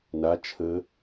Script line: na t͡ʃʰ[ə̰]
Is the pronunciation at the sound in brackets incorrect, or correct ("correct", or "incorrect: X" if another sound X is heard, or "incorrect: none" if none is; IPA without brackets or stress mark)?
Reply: incorrect: ə